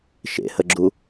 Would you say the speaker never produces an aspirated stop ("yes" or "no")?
yes